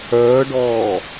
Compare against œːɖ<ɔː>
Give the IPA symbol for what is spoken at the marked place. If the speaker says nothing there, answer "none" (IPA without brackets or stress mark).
ɔː